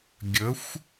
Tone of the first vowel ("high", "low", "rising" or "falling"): rising